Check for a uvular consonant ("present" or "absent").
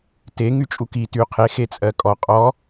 present